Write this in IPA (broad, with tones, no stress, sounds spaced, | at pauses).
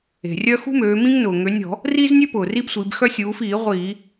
e̤˩ rʲ œ˦ x ṳ˦ m øː˩˧ m ĩ˦ ŋ n ʊː˩ ŋ ø˩˧ nʲ ɔ̤˧˩˧ | r iː˦ z nʲ ø˦ p ʊː˩ r iː˦ b sʷ iː˩˧ b x œ˦ sʲ uː˩˧ f iː˧˩˧ ʁʷ iː˧˩˧